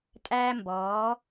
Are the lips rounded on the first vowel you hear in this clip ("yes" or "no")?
no